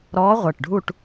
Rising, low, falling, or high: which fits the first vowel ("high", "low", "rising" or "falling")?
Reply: rising